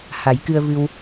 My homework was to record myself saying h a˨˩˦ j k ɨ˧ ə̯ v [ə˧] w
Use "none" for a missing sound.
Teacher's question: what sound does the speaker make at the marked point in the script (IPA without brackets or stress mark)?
ɨ˧